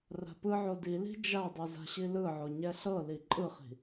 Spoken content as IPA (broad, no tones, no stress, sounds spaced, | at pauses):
r a̤ p ɯ ʕ o d i l i̤ d͡ʒ a dˤ u z a̤ ɕ i l ɯ ʕ o ɲ ɛ ɬ ɤ l i ǃʼ ɯ χ i̤